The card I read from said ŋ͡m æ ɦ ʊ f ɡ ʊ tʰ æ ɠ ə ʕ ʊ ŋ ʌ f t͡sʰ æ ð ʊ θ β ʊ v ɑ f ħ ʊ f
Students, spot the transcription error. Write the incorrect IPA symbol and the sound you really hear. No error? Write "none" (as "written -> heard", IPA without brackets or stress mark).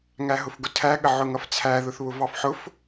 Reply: ŋ͡m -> ŋ